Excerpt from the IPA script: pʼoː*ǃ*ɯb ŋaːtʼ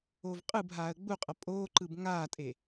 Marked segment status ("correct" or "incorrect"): correct